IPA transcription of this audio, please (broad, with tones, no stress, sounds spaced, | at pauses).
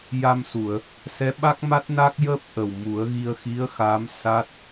j a˧ m s u˨˩˨ ə̯ | s ɛ˧˥ ɓ a˦˥ k̚ m a˦˥ t̚ n a˦˥ k̚ j əː˦˥ p̚ ʔ ə˨˩ w m u˨˩˦ ə̯ ɣ i˧ ə̯ x i˧˥ ə̯ x a˧˥ m s a˦˥ t̚